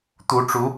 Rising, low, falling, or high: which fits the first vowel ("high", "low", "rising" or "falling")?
rising